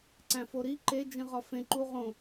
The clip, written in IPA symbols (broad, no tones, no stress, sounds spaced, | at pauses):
ǀ æ̃ f o ɾ i ǃ e d͡ʒ ĩ ʁ ɒ f ẽ ǃ u ʁ õ